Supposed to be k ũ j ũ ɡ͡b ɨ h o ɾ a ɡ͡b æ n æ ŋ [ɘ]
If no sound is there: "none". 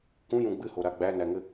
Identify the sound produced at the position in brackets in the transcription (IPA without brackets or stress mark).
ɘ